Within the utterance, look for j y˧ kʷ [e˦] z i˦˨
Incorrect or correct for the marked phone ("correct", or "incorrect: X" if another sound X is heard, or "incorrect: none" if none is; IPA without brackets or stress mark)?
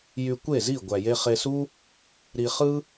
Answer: incorrect: e˦˨